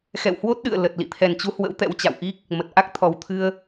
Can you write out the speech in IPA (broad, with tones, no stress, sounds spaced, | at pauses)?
x ɛ̰˧˨ w h w o˦˥ t̚ ɗ ɨ̰˧˨ ə̯ l ə˨˩ t̚ l ḭ˧˨ t̪ʰ ɛ˨˩ n t͡ɕ u˨˦ h w ə̰˧˥ w t̪ ɛ̰˧˥ w t͡ɕ a̰˧˨ w ʔ i˦˥ k̚ | m ə˨˩ t̚ ʔ a˦˥ k̚ t̪ʰ ɔ˨˩ w t̪ʰ ɨ˧ ə̯